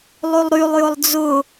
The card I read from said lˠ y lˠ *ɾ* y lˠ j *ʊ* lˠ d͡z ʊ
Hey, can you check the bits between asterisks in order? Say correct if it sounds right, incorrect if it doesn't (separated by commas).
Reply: correct, correct